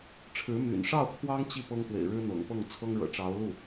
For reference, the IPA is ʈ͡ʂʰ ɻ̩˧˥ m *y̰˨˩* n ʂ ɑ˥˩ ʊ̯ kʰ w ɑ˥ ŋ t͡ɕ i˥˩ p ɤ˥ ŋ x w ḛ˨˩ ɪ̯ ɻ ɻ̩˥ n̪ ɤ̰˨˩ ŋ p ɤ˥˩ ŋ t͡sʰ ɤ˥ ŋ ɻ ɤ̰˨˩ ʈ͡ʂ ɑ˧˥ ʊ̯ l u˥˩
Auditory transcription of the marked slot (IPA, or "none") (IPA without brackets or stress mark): y̰˨˩